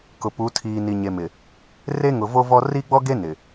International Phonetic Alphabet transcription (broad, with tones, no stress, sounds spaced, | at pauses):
k ʊ˨ p u˨˦ tʰ iː˨ n i˨ ɲ e˨ m ɪ˨ | r e˦ ŋ ʊ˨ v o˦ v ɔ˦ r i˦ ɡ͡b ɔ˦ ɡ e˦ n ɪ˨